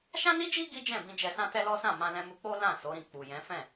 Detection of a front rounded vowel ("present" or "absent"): absent